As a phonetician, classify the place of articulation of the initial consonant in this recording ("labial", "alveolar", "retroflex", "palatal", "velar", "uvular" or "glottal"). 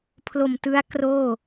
labial